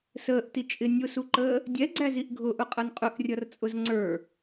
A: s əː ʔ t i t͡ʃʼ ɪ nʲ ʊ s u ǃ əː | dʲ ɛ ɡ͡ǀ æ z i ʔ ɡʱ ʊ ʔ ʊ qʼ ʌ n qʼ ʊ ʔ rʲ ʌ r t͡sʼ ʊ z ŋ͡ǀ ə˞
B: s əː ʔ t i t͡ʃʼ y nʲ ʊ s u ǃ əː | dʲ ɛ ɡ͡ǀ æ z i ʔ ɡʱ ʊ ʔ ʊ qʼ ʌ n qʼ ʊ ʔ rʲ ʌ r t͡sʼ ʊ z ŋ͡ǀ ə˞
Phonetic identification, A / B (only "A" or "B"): A